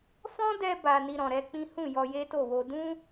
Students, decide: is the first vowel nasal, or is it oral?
nasal